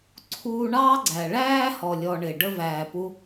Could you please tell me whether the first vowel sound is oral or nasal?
oral